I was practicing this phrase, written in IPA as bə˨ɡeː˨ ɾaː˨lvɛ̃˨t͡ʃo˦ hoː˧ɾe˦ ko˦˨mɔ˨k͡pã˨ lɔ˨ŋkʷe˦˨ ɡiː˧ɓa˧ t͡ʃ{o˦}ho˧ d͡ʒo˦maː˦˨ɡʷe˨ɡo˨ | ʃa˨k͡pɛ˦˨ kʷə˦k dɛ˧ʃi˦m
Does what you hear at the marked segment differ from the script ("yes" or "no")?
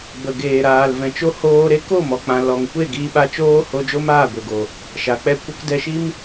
yes